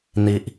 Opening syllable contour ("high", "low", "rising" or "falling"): low